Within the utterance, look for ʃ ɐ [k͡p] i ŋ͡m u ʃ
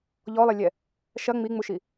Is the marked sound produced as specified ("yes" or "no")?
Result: no